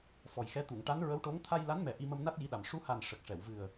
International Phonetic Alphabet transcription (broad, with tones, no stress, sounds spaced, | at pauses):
f ɔ˨˩ j x ɛ˧˥ t̪ u˨˩˨ ŋ ʈ a˧˥ n ɹ ə˧˥ w ʈ o˧˥ ŋ t̪ʰ a˧ j l a˧˥ n m ɛ˨˩ ʔ i˧ m ə˧ m n a˦˥ t̚ j i˧˥ ɗ a˨˩ m ʂ u˧˥ h a˨˩ n ʂ ə˨˩ k̚ ʂ ɛ˨˩˨ w v ɨ˨˩ ə̯